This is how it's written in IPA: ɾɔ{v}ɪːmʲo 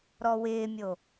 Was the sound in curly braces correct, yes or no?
no